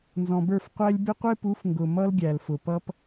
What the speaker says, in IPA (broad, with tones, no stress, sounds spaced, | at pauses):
n z ɔ̃˨ b ə˞˦˨ f qʷ æ˦ lʲ b ɪ˦ qʷ ɪ˦ p u˨˦ f ŋ ɡ ʊ˨ m ʌ˦ l ɡʲ æ˨ l f ʊ˨ p ʌ˦ p